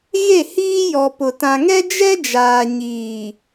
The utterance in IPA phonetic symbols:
ɣe˦˨hiː˦jɔ˨pʊ˨ tã˨ŋɛ˦ d͡ʒɛ˦d͡ʒaː˨ ɲiː˨

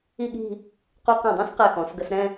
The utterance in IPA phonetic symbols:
i˥˧ɠi̤˥˧ | qu˧qɛ̃˧˩dˤũ˥˧s qɛ˧˩xɔ̃˩˧sɡə˧sɾɛ̃˥˧

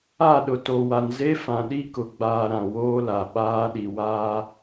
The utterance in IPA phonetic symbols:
a˦˨ɗʊ˨to˨wa˨n ze˦ fã˨ɗi˦kʊ˨ɡ͡baː˨ ɾã˨woː˦la˨ ɓaː˦ɗi˨ waː˦

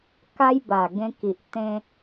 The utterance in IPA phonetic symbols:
ka˦jba˨˩ ɡẽ˧ki˨ʔ t̪ẽ˧

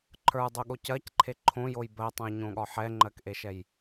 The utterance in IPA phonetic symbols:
ǃʰə˞dˤuɠo cɜcǃʰe ǃʰõjoj bɜtˤə̃jɲõɠɒ ħɛŋ͡ǃɜkʔeʃɛj

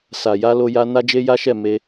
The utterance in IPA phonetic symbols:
sa˨ja˧lo˧ja˧ na˦d͡ʒe˦ja˦ʃɛ˦˨ me˧

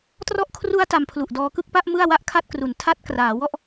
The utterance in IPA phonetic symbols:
trɔ˦˥ʔkʰru˦˥a̯ ta˧mpʰlu˨˩ʔdɔː˧kɯ˥˩k̚ pa˥˩ʔ mɯ˥˩a̯ wa˥˩ʔkʰa˥˩t̚kru˨˩n tʰa˦˥t̚ kraː˩˦wɔ˦˥ʔ

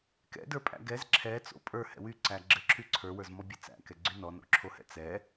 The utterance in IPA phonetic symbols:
kɛ̰də˞pʼæ̰ ɡɛz ǁʰɛt͡so̰ pʼə˞hɛ̰ wyǀæ ɡ͡ǁɘǁʰy ǀʰə˞wə˞zmɔbʲɘ t͡sæ̰kɛɡ͡ǀy nɔno̰ǁʰohɛ̰ t͡sɛ

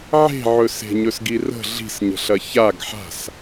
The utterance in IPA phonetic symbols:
ʕe̤ ʕɵse̤ɲɵs ɡirə̤ ɮi̤sɲə̤ɬɐ çaɡ ħa̤s

